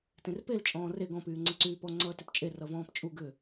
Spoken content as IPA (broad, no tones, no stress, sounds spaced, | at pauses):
t ẽ r p e l t͡ʃʼ ɔ̃ː r e ɡ ɔ̃ p yː ŋ͡ǀ e ǀ yː p ɔ ŋ͡ǀ ʌː t ʏ p t͡ʃʼ e r ʌ v ɔ̃ː p t͡ʃʼ u ɡ ʏ